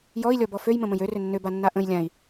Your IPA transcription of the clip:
j ɔ i̯ lʲ ɔ b ɔ f ø j m ə̃ m ə̃ j ø r ʏ nː ʏ b a nː a ʔ ə̃ j lʲ ã i̯

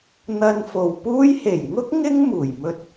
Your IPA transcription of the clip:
n̪ ɐ˧ n f o˨ w p uː˥ j h e˨˩ j ŋ ʊ˥ k̚ ŋ ɪ˥ ŋ m uː˨˩ j m ɵ˧ t̚

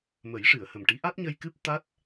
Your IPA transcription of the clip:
m ə˨˩˦ j ʂ ɨ˨˩˨ ə̯ h ə˨˩ m ʈ i˧˥ ʔ a˦˥ t̚ ɲ ə˧ j k ɨ˦˥ p̚ t̪ a˦˥ t̚

